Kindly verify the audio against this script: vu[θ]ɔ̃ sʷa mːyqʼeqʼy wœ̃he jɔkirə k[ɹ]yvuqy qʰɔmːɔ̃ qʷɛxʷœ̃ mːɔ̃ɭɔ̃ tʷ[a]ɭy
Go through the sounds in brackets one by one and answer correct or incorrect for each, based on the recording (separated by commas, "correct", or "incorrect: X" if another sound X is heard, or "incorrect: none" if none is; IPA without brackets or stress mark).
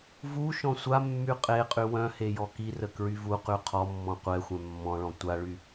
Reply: incorrect: ʃ, correct, correct